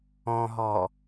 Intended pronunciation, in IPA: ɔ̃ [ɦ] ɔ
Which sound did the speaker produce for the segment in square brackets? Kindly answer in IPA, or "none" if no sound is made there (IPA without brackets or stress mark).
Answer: ɦ